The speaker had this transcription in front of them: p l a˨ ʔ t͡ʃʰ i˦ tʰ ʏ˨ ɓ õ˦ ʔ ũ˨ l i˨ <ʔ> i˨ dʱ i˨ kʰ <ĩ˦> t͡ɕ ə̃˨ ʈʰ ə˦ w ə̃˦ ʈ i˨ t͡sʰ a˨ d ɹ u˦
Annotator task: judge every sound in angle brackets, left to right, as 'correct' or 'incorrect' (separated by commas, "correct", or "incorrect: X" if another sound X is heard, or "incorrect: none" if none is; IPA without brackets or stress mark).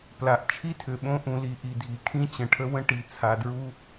correct, correct